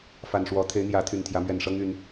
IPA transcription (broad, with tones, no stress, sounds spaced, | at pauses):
f a˨˩ n ʂ w ɔ˨˦ t̪ʰ e˨˦ ɪ̯ n̪ j ä˨˦ t̪ʰ y˨˩ n t̪ʰ j ä˨˦ m ɥ ɛ˨˩ n ʂ ɤ˦ ŋ y˨˦ n